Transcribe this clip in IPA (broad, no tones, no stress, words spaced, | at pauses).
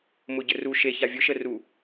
mʊɟəru ʃe çavʲʊ ʃəru